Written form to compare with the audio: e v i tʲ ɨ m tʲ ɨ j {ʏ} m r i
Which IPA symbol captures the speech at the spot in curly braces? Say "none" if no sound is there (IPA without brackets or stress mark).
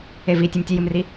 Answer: ɨ